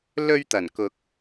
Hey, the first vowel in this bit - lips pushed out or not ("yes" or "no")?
yes